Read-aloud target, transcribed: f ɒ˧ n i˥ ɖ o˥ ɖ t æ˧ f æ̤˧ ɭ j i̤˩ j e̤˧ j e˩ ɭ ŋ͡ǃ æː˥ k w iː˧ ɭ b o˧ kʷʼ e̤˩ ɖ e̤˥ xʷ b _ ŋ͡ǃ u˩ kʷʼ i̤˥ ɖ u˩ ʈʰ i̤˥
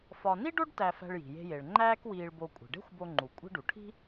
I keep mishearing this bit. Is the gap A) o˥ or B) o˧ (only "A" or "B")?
B